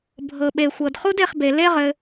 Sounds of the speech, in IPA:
bʱ ɤ˨ ɓ e˨ xʷ ɤ˨ d χ u˦ d e˧ χ b e˨ l e˦ ʁ ɘ˧

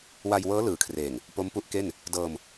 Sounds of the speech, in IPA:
w a˧ j w ɤː˦˥ l ɯː˩˦ kʰ r eː˨˩ ŋ | p o˦˥ m p u˦˥ ʔ k e˥˩ n | d ɤː˧ m

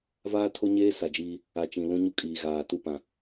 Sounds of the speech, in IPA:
v aː˦ tʰ o˦ ɲ eː˦ s a˨ d͡ʒ iː˦ | a˨ t͡ʃ ĩ˨ l ũ˦ ɲ u˦ kʼ iː˨ ɣ aː˨ t u˦˨ p ã˨

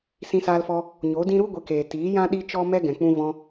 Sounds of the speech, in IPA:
s ĩ˧ s aː˧ l f ɔ˧ | ɲ o˨˦ d ĩ˦ ɾ u˦ ɡʷ e˧ k eː˨ t iː˨˦ j ã˦ ɗ i˦ t͡ʃ ɔ˦ m ɛ˦ ɡ ɛ̃˨ k͡p ũ˧ v ɔ̃˧

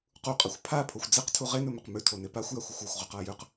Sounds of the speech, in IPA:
q u qʼ ɐ xʷ pʰ a pʰ o xʷ d͡z e q tʰ u ʁ e n ɵ m ɵ q m ʉ tʰ o n e p a xʷ j a xʷ ɨ xʷ o xʷ ʁ ʉ q a j ʉ q

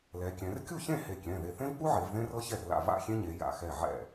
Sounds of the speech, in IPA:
l ɛ˩˧ kʲ ɛ̃˩˧ r kʲ u˥˩ ç ẽ˥˩ h e˧˩ kʲ ɛ̃˩˧˩ ð e˧˩ θ ẽ˥ v k͡p u˥ ʕ e˩˧ v ð ẽ˥ r ɤ˥ ç ɛ˥˩ r l a̰˥˩ v a̰˥˩ xʲ ẽ˥ ɲ e˩˧ j a̰˧˩ x ɛ˧˩ ʕ ɛ̰˥˩

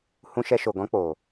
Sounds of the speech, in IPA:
h ũ˧ ʃ ɛ˧ ʃ o˨ ɡ ɔ̃˦ k͡p o˨

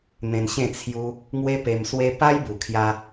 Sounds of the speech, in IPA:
n̪ ẽ˧ n ɕ ẽ˥˧ t͡sʰ j u˧ | ŋ w e˦ p e˧ m s w e˦ p a˦ j b u˨˩ kʰ j a˧

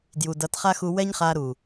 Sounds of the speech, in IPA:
d j u˨ d ʌ˨˦ t χ a˦ x u˧ w ɛ˦ ɲ χ aː˧ ɾ uː˨

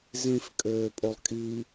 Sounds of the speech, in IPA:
z ĩ f kʼ øː pʼ o lˠ kʼ i

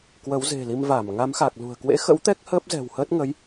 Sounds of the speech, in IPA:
k w ə˨˦ w z e̤˨˩ l i˧ m v a˧˩ m ŋ a˨˦ m x a˨˩ k̚ l ṳ˨˩ ə̯ k w ḛ˧˥ x ə̰˧˥ w t̪ ɛ˦˥ k̚ h əː˦˥ p̚ z ɛ̤˨˩ w h əː˦˥ t̚ ŋ ə˨˦ j

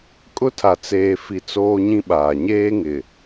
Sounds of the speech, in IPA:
kʼ ʊ˦ tʰ a˨ t͡s eː˨ f i˨ t͡s oː˦ ɲ ĩ˦ ɓ aː˨ ɲ eː˦ ŋ ɪ˨

